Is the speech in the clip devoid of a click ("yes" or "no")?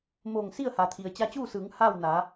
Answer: yes